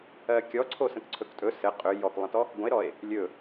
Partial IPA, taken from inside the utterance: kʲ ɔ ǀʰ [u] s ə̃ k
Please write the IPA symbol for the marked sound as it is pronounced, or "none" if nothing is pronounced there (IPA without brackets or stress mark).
o